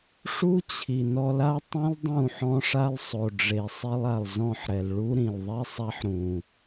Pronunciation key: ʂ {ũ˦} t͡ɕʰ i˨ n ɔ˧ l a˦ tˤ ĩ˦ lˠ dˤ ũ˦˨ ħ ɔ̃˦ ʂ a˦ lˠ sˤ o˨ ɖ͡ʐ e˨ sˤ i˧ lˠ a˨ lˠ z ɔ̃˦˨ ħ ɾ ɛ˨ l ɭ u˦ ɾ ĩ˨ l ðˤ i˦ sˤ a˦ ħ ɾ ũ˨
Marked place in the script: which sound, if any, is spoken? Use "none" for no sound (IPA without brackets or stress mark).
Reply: u˦